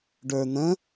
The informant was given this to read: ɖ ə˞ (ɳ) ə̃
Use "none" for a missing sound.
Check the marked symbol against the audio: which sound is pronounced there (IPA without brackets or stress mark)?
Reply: n̪